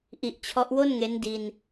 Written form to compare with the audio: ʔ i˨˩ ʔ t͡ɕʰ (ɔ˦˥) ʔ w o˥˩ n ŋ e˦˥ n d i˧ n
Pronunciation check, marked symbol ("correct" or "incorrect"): correct